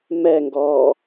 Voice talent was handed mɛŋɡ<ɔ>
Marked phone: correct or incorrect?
incorrect: ɔː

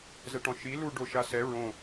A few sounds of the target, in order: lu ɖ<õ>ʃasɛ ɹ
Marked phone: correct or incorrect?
incorrect: o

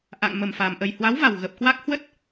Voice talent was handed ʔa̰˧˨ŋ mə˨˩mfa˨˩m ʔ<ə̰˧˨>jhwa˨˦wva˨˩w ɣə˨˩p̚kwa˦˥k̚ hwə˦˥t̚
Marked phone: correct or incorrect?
incorrect: ə˨˩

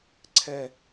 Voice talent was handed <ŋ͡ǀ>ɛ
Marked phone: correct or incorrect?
incorrect: ǀʰ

